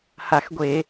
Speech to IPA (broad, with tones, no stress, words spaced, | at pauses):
ha˧˩˧xɡʷe˧˩˧